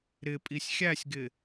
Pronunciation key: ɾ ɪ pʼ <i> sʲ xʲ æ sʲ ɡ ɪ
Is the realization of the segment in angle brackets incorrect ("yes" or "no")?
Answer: no